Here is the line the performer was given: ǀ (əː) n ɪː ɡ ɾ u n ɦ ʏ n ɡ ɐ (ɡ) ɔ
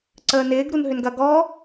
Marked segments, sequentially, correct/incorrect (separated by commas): correct, correct